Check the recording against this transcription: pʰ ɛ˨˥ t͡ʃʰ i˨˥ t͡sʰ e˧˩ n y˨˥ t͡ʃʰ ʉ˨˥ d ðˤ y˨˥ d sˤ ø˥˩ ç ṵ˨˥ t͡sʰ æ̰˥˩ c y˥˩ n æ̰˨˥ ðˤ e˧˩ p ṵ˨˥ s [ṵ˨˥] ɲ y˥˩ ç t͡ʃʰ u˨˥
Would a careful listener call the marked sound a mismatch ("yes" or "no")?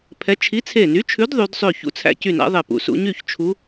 no